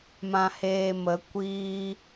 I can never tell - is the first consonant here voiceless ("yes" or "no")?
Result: no